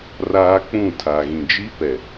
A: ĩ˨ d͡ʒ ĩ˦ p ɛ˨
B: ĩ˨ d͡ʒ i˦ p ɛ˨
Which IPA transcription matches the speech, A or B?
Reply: B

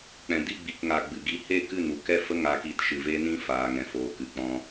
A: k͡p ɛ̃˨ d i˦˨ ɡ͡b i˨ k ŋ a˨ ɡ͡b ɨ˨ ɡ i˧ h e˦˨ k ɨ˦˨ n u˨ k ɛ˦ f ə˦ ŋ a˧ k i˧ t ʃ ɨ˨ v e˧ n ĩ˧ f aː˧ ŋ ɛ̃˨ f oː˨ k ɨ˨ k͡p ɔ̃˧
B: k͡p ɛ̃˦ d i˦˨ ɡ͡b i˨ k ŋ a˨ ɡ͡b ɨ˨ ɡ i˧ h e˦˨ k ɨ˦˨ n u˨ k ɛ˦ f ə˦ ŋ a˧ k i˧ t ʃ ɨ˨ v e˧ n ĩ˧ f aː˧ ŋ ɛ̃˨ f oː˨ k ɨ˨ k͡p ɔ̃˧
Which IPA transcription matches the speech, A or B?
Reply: A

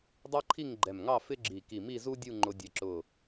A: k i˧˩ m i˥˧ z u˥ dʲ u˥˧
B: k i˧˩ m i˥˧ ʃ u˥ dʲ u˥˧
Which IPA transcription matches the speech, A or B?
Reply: A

